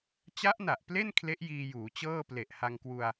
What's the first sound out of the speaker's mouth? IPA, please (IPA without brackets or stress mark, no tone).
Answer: t͡ɕ